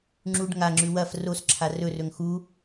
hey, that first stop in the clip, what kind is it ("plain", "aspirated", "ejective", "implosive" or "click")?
click